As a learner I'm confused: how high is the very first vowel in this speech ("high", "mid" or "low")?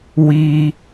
high